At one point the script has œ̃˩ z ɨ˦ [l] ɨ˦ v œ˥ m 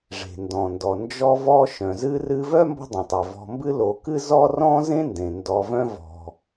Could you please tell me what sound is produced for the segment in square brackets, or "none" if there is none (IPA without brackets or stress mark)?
r